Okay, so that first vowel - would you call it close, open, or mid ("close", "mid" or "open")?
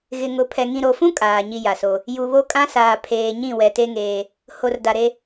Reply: close